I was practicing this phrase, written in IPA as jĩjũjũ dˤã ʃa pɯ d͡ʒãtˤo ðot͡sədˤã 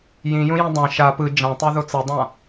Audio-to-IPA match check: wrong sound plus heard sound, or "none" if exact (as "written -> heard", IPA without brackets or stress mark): ə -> ʌ